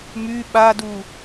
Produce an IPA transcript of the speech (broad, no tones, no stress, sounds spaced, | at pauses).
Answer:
m y ɓ a d u